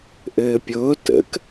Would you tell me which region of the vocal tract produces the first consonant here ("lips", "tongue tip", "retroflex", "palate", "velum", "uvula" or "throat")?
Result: throat